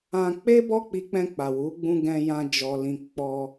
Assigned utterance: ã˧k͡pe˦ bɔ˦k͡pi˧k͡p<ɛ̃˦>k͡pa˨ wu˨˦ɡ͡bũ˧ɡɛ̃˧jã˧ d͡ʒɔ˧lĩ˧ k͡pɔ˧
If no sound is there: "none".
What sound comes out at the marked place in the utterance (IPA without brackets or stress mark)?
ɛ̃˧